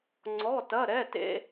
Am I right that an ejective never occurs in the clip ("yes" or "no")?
yes